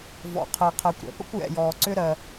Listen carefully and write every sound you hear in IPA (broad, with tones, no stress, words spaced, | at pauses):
vɔ̰˩qʰɜ˩qʰɜ˩kʷ ɾɛ̰˩pə̰˥kʷjɛ̰˩jɔː˩ ǀʏ˥ɾɜ˩